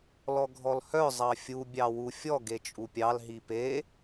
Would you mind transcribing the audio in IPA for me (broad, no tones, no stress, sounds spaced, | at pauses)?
l ɔ ɡʱ ɔ l h œ zˤ ɑ fʲ u bʲ ɑ w u fʲ ɔ ɡ e t͡ʃʼ u pʲ ɑ l ɦ i p e